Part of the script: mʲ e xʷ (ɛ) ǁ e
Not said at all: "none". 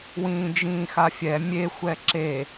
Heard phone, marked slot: ɛ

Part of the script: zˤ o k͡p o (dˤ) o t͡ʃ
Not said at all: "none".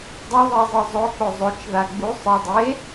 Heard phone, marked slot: zˤ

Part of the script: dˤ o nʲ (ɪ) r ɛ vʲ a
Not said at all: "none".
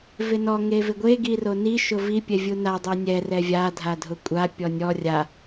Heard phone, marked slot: ɛ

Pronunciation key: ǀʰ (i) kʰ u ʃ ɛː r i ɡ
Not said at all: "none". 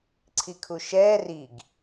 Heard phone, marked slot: i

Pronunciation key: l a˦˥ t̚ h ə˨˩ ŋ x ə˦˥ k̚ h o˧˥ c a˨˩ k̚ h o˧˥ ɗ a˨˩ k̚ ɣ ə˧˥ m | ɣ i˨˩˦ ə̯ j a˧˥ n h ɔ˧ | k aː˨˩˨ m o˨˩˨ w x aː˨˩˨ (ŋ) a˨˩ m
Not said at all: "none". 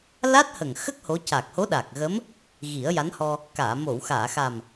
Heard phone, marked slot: x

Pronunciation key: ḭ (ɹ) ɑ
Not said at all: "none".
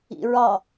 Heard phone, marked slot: ɹ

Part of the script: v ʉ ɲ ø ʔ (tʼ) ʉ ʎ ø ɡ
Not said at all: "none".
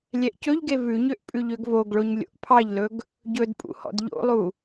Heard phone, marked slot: pʼ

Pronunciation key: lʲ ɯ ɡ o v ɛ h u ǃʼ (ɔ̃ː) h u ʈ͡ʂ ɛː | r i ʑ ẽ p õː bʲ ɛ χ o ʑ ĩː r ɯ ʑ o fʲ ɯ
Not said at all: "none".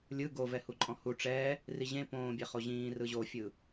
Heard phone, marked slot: ɔ̃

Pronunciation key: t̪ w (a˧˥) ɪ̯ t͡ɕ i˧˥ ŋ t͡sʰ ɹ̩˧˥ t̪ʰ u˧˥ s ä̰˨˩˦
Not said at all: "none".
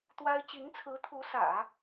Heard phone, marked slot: a˥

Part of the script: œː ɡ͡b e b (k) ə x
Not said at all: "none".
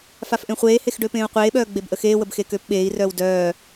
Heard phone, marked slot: ʔ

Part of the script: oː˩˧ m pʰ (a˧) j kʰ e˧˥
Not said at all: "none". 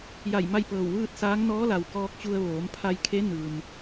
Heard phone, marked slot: a˧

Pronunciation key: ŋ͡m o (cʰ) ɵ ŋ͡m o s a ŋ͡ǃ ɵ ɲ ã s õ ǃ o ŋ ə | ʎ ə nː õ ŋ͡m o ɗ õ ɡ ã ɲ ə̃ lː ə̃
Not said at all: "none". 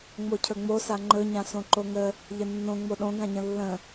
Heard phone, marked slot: cʰ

